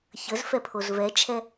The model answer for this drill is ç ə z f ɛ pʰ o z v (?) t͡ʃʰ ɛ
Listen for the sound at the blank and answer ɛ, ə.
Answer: ɛ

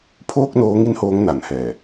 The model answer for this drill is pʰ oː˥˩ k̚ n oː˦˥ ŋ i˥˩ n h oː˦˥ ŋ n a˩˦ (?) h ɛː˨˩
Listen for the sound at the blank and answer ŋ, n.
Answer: n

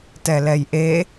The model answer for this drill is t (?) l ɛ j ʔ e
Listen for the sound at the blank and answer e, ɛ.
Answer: ɛ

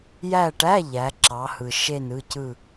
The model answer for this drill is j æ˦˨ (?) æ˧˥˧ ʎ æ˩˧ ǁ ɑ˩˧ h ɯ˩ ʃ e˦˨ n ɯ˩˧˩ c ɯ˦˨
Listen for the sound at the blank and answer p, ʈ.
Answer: ʈ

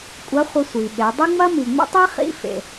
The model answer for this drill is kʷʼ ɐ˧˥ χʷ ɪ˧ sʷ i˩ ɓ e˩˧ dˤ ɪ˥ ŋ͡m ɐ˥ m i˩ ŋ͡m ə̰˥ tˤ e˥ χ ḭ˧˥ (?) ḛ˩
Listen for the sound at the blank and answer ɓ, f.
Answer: f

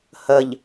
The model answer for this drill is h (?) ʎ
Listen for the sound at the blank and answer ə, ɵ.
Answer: ə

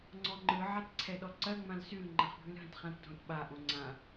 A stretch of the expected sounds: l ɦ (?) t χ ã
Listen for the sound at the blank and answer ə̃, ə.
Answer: ə̃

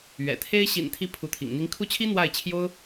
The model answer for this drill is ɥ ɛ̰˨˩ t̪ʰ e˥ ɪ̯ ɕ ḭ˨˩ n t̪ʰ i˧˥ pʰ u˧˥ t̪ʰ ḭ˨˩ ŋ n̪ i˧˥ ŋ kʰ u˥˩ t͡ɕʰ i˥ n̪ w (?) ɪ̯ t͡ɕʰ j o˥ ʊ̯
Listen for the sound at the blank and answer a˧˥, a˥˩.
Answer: a˥˩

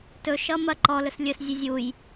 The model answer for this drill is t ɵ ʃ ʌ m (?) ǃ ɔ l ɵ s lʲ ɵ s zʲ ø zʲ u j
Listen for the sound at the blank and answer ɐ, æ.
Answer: ɐ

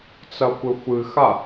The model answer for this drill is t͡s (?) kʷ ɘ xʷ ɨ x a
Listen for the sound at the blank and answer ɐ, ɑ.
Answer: ɐ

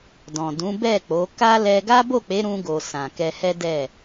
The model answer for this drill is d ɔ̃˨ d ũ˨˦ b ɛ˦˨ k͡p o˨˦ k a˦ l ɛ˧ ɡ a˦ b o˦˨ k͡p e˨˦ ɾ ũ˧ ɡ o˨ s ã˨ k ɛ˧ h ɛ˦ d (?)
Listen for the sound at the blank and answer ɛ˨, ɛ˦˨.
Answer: ɛ˦˨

